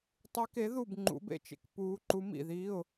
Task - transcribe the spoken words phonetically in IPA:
tˤi˧˥ke˧˥ðu˥˨b ŋ͡ǃṵ˧˥b ḛ˥˨t͡ʃḛ˥k puː˧˥ ǃu˧˥mḭ˥˨ðiː˧˥˧ʊ̯

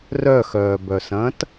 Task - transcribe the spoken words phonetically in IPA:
rœxœːbœsɐ̃ːt

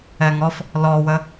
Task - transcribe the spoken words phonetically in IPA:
ɛŋɔf | lɔwə

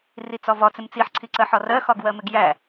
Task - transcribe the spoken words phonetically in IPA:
rit͡sɒvɒt͡sɪm t͡siħǀʰiǀɜħɒ rɜxɒɡ wɜmɪɡjæ

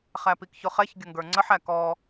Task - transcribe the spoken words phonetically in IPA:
χæpikçʊχɛç ɡʲʊŋɡə˞ŋ͡ǀəħ ækɔ

